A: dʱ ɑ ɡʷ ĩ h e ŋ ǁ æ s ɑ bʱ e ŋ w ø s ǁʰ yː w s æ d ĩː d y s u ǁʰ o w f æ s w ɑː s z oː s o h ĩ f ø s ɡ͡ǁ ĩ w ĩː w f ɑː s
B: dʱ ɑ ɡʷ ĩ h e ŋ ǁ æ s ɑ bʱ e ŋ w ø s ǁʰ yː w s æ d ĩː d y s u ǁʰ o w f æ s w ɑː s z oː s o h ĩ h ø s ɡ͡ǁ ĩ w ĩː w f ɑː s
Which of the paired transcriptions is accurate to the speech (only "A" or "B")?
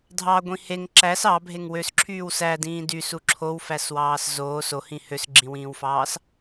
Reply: B